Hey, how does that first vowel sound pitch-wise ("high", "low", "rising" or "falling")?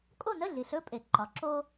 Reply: falling